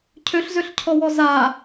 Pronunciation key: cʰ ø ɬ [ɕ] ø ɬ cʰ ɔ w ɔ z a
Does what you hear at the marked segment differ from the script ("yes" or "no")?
yes